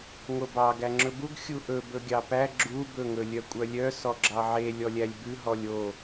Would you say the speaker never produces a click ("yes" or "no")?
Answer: no